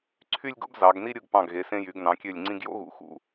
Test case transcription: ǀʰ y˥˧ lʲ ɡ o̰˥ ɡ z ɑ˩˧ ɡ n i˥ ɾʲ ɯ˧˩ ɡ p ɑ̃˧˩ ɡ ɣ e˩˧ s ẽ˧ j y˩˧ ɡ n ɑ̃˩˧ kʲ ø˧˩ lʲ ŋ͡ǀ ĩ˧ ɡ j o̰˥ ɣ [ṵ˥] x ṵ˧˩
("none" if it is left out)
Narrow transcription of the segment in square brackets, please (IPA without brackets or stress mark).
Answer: ṵ˩˧